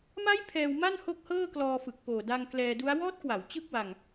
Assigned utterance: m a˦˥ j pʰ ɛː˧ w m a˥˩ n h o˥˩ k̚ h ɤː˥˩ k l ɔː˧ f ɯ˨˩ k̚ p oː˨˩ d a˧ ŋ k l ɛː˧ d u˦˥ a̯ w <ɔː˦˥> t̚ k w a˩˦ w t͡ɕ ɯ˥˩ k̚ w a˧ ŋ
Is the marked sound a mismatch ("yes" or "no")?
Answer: no